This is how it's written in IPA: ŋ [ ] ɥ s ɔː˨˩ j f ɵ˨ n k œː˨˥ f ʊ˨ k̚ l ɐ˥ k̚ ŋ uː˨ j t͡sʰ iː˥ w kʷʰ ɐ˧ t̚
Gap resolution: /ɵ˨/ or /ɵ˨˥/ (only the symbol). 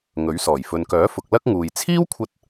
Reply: ɵ˨˥